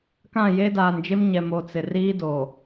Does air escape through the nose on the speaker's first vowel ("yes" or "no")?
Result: yes